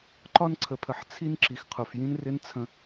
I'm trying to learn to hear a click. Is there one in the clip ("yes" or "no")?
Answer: yes